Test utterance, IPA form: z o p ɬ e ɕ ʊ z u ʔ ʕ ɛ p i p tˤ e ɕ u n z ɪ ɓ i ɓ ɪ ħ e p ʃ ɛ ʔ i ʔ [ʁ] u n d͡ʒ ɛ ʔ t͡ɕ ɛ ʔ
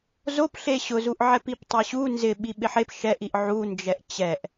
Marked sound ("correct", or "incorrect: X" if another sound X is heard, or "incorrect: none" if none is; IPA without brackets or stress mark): incorrect: ʕ